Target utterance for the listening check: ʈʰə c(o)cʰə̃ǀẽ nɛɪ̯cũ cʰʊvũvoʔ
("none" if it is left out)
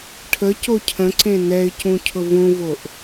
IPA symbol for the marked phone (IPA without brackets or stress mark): o